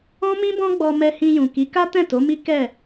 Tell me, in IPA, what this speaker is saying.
ɔ̃˦mĩ˦bɔ̃˦ɡ͡bɔ˧ mɛ˧hĩ˧jũ˨ ki˨˦ka˦tɛ̃˦˨ to˨˦mi˦ kɛ˦˨

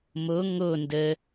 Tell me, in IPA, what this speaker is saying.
mo ŋo ndə

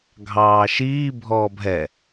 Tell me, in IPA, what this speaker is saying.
ɡʱɑːʃiː bʱɔːbʱɛ

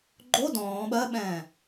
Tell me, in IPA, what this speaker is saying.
ɡ͡ǃo dɔ̃ː ɓɜɓɛ̃ː

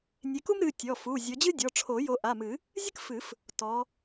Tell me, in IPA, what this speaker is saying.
nʲe˨˦ku˥mɾɨ˩˧˩ tʲɔ˩˧˩fu˩˧˩ zʲɔ˨˦d͡ʑɨ˥ dʲɔ˩˧˩ʈ͡ʂʰo˨˩˦ jo˨˦ʔa˩˧˩mɨ˨˩˦ | zʲɨ˥kfɨ˨˩˦f | tɔ˨˦

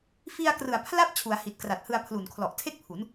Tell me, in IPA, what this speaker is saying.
fi˧a̯krɯ˨˩a̯ pʰla˥˩p̚ t͡ɕʰu˩˦a̯hi˨˩t̚kra˨˩t̚hɯ˧a̯ pʰluː˨˩nkʰlɔ˨˩ʔtʰe˥˩k̚pʰu˩˦n

